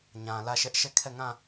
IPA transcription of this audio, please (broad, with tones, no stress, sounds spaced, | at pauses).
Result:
ɲ ã˨ l ä˦˨ ʃ ɛ˦ ʔ ʃ ɛ˦˨ kʰ ɛ˦˨ ŋ ã˦˨